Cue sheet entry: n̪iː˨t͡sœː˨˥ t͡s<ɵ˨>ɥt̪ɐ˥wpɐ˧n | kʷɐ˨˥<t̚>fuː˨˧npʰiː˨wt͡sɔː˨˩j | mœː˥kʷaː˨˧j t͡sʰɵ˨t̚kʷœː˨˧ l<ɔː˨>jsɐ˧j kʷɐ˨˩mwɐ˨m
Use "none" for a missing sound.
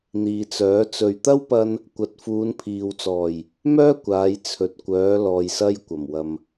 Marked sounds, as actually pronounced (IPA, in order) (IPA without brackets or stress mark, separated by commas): ɵ˨, t̚, ɔː˨